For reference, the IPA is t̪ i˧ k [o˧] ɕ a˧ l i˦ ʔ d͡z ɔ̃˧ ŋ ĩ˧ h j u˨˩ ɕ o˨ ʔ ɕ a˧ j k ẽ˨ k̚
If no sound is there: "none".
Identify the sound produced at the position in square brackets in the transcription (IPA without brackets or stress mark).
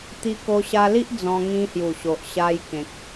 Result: o˧